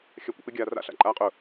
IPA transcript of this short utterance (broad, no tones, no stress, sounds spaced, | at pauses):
xʲ a kʷ ə̰ p ɪ ɡʲ aː r a̰ ɬ a̰ ǃʼ aː qʼ ʊ